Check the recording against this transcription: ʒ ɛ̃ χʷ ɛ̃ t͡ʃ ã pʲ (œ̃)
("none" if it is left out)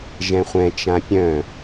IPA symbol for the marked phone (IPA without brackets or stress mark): œ̃